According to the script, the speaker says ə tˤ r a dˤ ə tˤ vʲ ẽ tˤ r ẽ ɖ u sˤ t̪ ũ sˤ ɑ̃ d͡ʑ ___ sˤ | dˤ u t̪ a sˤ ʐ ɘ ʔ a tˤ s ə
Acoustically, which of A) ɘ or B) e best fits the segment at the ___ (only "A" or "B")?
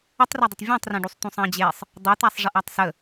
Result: B